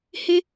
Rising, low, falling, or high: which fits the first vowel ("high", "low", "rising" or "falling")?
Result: high